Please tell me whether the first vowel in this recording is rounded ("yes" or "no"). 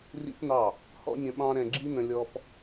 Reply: no